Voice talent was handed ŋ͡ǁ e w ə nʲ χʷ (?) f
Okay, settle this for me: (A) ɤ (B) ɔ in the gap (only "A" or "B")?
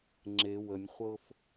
A